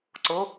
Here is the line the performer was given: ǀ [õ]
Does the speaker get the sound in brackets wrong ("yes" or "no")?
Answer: yes